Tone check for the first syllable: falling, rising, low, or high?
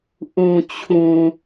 low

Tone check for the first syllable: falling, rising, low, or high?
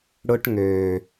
high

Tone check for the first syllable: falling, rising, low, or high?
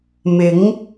rising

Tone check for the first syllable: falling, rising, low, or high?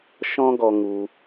high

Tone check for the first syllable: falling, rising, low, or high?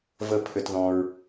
high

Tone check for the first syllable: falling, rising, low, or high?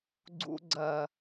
low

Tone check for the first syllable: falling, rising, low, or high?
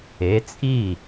rising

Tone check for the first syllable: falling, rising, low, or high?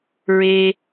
low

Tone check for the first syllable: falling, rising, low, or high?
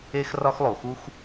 high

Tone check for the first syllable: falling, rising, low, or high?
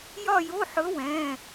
falling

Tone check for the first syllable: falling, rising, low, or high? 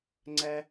high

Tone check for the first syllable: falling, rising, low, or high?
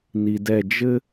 low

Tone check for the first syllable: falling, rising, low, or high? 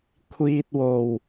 low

